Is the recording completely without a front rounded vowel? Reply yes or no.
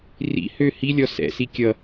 no